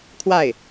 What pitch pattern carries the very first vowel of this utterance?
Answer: falling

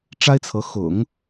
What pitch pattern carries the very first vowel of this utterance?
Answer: high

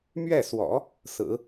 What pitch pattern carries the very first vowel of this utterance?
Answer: falling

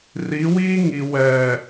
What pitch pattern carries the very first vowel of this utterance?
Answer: rising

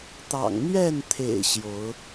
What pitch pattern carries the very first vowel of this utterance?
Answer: low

